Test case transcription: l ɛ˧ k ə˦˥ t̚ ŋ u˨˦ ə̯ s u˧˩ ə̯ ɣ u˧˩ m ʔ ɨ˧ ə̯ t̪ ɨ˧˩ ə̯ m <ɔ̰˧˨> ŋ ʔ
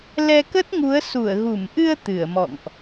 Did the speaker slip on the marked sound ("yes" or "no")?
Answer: no